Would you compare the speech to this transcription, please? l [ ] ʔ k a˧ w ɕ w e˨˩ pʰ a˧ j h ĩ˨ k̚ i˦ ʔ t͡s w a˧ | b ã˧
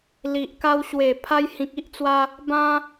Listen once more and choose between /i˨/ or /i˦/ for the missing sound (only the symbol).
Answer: i˨